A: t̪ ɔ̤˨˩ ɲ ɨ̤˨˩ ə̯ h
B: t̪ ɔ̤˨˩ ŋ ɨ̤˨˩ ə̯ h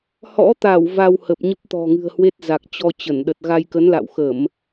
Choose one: B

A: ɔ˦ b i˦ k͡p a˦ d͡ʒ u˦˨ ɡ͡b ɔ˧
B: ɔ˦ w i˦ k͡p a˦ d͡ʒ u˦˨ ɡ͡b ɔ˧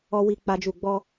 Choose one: B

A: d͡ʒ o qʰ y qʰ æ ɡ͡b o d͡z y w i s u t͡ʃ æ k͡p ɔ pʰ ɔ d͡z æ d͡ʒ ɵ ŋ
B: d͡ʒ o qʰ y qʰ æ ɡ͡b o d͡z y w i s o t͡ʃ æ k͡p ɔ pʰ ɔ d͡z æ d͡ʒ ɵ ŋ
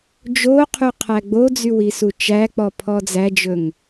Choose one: A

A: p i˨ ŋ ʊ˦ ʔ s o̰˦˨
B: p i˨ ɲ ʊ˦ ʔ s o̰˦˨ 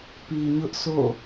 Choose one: B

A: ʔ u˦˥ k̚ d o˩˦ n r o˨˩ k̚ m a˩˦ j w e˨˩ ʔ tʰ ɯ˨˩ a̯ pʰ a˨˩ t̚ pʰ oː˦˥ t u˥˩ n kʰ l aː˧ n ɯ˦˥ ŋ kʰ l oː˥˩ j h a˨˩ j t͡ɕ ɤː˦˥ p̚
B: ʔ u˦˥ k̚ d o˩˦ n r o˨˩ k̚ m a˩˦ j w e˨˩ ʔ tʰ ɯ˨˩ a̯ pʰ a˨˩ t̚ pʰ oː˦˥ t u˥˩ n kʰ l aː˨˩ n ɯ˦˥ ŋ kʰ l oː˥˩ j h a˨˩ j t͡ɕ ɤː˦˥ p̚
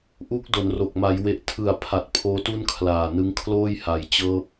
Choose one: B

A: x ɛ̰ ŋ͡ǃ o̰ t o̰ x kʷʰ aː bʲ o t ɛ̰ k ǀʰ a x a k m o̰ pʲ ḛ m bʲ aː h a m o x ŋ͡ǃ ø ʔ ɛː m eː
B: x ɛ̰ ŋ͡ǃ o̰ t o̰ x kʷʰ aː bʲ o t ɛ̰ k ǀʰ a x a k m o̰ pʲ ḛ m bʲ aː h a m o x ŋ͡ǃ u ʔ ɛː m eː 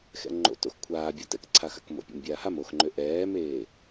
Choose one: A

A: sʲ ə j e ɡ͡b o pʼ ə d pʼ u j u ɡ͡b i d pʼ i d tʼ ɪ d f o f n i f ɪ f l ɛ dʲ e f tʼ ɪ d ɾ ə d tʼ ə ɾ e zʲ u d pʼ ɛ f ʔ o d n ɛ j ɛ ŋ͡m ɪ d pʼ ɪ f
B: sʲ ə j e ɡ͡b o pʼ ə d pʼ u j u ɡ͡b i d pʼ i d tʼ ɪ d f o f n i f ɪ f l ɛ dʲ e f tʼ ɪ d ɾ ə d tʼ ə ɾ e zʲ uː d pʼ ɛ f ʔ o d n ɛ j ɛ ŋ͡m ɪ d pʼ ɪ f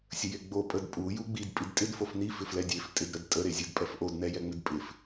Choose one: A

